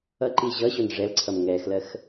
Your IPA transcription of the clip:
ʌ ǃ i ʑ ʌ ɕ o n ʐ ɛ l ǀʰ ʌ m ŋ ɛ x l ɜ x

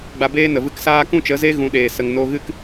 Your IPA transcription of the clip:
ɡ͡b a˧ b eː˦ n ə˨ v ɨ˦ k s aː˦ k ũ˦ t͡ʃ ə˨˦ z e˦ ɣ ũ˨˦ ɗ eː˨ s ə˨ ŋ n o˧ ɣ ɨ˦ k

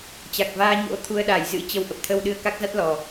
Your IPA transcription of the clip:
t͡ɕ a˨˩ k̚ v aː˧ ɲ o̰˧˥ t̪ʰ u˧ ə̯ ɗ a˧˩ j z ɨ̰˧˥ t͡ɕ ə˧ w ʔ ə˨˩ p̚ t̪ʰ ə˧ w ɗ ɨ˧ ə̯ k a˦˥ k̚ z a˦˥ t̚ l ɔ˨˩

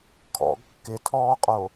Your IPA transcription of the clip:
kʰ ɔ̰ ɡ kː ɪ tʰ ɔː qʼ o

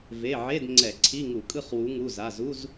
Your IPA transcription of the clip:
v e˩˧˩ ʕ e˧˥˧ d ŋ͡ǀ ɛ˧˩˧ ǀʰ i˧˥˧ ŋ u˧˩˧ kʼ ɯ˥˧ χ w u˨˦ ŋ u˩˧˩ z a˩˧˩ z u˧˥˧ z

